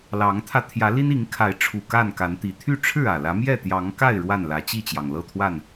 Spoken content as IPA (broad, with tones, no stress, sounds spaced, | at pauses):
l ɑ˨˦ ŋ t̪ʰ ä˧ t̪ʰ j ä˨˦ l i˦ n i˨˦ ŋ kʰ a˨˦ ɪ̯ ʈ͡ʂʰ u˨˩ k a˥˨ n k a˨˦ n t̪ i˨˩ t̪ʰ y˥˨ ʈ͡ʂʰ ɻ̩˥˨ ä˨˩ l ä˨˦ m j ɛ˥˨ t̪ j ɑ˨˦ ŋ k a˥˨ ɪ̯ ɻ w a˥˨ n l ä˨˦ t͡ɕ i˥˨ t͡ɕ j ɑ˩ ŋ l ɤ˥˨ t̪ʰ w a˥˨ n